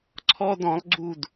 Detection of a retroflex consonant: absent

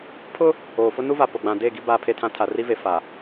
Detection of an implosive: absent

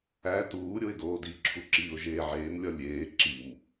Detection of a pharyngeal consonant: present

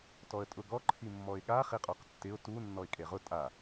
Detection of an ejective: present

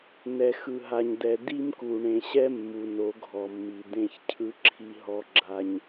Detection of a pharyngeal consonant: absent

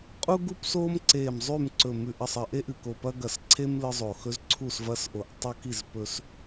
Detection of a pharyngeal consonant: absent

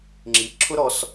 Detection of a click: present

